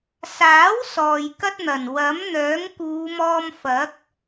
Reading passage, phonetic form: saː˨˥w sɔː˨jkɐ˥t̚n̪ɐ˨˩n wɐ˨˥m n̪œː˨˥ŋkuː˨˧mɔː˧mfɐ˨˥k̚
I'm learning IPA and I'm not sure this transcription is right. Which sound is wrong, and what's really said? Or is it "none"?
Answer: none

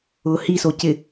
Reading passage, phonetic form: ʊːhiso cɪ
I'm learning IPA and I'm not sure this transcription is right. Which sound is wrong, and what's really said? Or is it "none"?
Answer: none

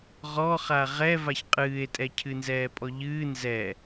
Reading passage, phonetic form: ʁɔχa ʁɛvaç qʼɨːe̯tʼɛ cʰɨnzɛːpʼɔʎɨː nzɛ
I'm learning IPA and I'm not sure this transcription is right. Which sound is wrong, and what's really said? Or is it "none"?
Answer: none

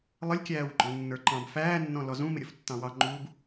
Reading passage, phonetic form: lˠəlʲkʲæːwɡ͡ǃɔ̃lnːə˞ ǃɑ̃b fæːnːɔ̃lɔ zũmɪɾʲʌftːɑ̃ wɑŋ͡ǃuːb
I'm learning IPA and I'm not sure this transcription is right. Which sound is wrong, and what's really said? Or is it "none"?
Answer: none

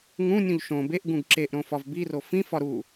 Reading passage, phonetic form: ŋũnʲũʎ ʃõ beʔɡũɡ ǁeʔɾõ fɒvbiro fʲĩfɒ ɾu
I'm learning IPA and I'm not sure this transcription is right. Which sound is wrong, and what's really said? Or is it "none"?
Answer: fʲ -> f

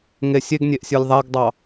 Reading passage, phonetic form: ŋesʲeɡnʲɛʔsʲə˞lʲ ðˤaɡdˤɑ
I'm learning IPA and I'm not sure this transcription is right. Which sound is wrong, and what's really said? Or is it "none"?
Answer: ɛ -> e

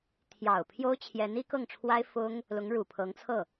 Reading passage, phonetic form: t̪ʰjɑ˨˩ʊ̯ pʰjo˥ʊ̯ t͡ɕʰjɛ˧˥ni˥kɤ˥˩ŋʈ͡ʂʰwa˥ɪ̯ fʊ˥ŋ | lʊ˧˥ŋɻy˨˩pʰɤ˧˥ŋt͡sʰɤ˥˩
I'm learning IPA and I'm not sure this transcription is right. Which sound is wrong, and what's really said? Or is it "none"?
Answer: y˨˩ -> u˨˩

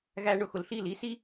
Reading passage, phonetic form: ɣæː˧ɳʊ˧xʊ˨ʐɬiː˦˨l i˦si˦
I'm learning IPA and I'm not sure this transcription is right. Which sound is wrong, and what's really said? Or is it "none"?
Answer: ʐ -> l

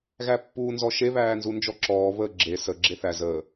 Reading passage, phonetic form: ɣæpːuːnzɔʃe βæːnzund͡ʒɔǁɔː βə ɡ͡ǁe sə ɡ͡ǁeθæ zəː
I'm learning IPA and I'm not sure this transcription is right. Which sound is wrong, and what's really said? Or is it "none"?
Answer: none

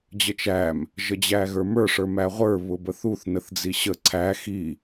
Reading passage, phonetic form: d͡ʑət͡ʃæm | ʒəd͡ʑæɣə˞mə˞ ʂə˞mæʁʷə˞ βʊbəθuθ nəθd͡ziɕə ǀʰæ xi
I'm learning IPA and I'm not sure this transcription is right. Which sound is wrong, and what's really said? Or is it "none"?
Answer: none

